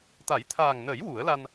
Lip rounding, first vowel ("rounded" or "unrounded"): unrounded